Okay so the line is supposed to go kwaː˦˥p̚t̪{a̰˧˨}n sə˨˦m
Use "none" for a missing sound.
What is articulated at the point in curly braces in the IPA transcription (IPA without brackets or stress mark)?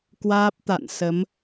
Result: a̰˧˨